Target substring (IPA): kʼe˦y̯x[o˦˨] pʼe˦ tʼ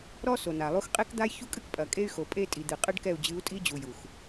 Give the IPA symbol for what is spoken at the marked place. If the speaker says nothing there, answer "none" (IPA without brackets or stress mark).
o˨